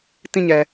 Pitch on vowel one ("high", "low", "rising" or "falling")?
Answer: falling